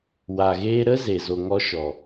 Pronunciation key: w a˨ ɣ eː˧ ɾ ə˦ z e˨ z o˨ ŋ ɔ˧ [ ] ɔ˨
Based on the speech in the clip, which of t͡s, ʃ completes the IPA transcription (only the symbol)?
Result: ʃ